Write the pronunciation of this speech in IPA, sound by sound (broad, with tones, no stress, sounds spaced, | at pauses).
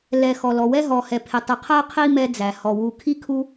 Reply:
l ɛ˨ x ɔ˩ l ɔ˩ w ɛ˥ ɦ ɔ˨ h ɛ˨ pʰ ɪ˨ tˤ i˨ qʰ ɜ˥ qʰ i˥ m ɛ˦ d͡z æ˩ h ɔ˩ w u˨ kʰ i˥ kʰ u˦